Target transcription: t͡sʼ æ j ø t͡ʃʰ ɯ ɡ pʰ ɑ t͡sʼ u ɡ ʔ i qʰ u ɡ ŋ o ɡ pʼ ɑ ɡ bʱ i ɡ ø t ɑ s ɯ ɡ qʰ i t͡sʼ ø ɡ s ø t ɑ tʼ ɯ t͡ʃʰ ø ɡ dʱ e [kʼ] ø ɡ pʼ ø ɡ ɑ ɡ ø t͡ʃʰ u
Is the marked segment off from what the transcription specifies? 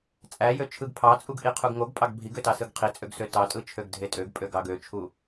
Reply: yes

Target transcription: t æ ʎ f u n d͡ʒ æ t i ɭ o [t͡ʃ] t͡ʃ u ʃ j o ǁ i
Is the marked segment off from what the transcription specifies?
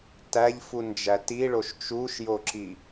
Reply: yes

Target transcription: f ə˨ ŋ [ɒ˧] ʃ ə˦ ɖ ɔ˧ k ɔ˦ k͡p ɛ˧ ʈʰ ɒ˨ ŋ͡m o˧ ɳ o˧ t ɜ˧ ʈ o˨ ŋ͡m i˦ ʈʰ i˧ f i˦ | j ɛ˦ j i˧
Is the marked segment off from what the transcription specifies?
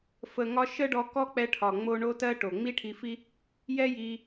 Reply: no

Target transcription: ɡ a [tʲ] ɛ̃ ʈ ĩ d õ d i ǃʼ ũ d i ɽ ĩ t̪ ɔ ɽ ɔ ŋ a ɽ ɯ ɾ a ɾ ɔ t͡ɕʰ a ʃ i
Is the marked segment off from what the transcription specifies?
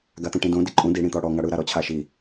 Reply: yes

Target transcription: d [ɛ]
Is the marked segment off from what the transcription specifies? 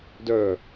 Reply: yes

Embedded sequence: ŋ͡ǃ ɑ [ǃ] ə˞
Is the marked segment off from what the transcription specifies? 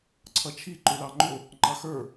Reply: yes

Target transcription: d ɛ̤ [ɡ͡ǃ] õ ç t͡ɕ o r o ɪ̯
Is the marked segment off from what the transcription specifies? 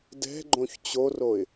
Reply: no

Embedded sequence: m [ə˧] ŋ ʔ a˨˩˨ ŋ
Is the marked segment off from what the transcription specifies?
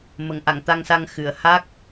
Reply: yes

